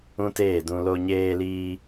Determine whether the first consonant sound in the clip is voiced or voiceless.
voiceless